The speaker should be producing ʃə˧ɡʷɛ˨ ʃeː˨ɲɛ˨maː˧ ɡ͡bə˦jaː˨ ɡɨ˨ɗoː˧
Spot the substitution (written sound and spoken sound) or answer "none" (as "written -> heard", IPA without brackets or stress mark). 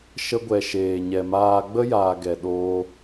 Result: ɨ˨ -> ɛ˨